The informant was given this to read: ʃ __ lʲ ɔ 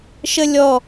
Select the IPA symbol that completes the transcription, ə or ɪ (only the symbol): ə